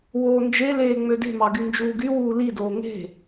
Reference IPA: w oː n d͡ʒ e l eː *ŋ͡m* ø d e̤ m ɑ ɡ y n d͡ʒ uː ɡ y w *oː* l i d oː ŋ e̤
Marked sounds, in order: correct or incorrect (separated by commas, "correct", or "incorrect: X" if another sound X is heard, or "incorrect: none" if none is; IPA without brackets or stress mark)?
correct, incorrect: uː